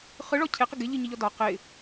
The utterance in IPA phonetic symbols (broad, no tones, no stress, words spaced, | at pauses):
χɯɭɔ cʰeqɨ ɡɪʎɨɲiʎɔ dɒ qɪ